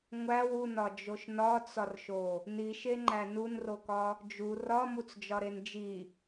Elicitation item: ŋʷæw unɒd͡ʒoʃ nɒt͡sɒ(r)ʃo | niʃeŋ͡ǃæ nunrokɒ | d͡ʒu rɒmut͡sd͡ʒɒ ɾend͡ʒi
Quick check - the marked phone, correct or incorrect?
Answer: correct